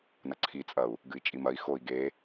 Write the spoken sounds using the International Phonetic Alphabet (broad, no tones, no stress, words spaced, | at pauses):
nɐǀʰit͡sʼɐu̯ | ɡɨi̯t͡ʃʼimɐi̯ xoi̯ ɡe